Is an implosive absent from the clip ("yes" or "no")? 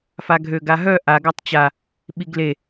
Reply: no